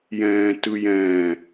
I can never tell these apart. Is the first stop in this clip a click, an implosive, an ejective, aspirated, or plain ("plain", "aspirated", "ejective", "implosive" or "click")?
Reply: plain